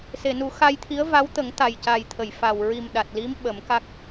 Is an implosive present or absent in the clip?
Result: present